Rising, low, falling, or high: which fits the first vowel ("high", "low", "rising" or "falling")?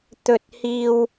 rising